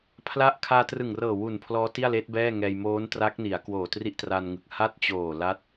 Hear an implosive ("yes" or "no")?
no